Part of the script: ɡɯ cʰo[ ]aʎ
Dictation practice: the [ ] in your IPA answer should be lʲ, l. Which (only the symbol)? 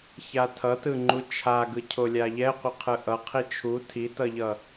lʲ